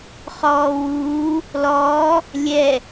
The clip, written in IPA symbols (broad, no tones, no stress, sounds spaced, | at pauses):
χ ɔː w uː | l ɔː | lʲ ɛ